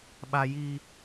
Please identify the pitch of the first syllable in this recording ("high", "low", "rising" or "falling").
high